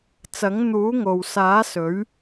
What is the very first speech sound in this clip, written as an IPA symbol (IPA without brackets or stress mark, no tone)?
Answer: t͡s